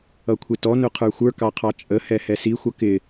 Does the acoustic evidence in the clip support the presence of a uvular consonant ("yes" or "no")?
yes